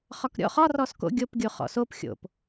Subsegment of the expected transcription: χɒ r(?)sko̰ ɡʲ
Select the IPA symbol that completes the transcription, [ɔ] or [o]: ɔ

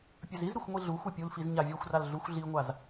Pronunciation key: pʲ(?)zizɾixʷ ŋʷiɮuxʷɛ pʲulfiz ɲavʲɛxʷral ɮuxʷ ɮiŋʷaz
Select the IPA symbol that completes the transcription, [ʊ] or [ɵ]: ɵ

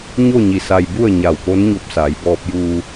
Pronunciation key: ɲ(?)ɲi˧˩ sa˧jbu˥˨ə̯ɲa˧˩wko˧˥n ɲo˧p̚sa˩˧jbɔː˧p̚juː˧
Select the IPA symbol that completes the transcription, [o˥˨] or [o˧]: o˥˨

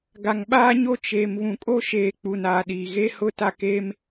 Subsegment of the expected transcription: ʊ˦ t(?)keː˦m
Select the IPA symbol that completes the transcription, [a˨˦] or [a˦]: a˦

